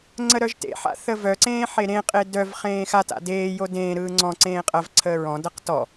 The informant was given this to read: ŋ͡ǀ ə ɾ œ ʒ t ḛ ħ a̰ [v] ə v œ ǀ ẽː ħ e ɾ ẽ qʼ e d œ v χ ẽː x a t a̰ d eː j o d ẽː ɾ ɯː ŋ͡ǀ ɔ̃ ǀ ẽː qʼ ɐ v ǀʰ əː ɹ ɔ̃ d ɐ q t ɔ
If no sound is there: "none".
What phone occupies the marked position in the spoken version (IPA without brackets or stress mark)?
θ